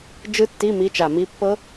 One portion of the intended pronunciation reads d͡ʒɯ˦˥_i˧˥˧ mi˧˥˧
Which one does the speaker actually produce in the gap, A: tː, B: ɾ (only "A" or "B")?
A